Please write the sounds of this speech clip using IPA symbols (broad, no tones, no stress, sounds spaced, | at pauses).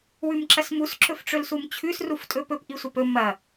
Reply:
w ʉ m ǁ ɐ s m u s ǁ ɵ f ʈ͡ʂ ɵ l s u m t͡ɕʰ ʉ s r u f tʼ ɵ p ɵ p ʔ i sʷ ɐ p ɵ m ɐ